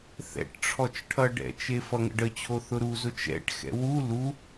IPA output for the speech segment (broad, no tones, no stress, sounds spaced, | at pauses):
θ ɛ̰ ʈ ʈ͡ʂʰ ɔ t͡ʃ ʈʰ ʌ ɖ ɛ̰ t͡ʃ e f ʌ ŋ ə̰ ɖ ə t͡ɕʰ o θ ʊ ɾ u z ʊ t͡ʃ ɛ̰ ʈ x ɛ̰ w u l u